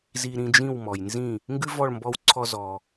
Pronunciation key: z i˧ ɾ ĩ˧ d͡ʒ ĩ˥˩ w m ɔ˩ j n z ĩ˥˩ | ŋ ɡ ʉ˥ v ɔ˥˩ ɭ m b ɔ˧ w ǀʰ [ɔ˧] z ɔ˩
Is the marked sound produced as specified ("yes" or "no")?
yes